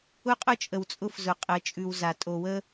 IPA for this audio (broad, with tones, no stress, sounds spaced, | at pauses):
ʊ˦ qʼ ʊ˦ t͡ʃʼ ə˨ w t͡sʼ ʊ˦ f z ʊ˨ qʼ ə˨˦ t͡ʃʼ ʉ˨ w z a˨ tʼ o˨ w ə˦